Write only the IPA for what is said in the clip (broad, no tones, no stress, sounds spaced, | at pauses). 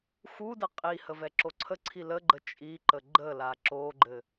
x u d ɘ qʼ i h ə v ɛ ǁ o ǀʰ ə ǀʰ i l ə ɡ͡ǃ ə t͡ʃʼ i ǃ ə ɡ͡ǃ ə l a ǁ o ɡ͡ǃ ɘ